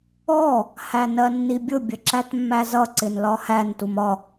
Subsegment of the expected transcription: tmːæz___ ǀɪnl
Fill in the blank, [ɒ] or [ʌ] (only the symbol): ʌ